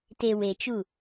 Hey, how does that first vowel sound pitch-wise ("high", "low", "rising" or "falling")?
low